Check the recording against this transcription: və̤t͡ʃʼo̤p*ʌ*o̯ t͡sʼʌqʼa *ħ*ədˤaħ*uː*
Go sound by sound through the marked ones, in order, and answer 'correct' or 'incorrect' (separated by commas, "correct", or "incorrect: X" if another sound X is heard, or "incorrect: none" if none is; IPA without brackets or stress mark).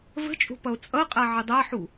correct, incorrect: ʕ, incorrect: u